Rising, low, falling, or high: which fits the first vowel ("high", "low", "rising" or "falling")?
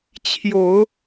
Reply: low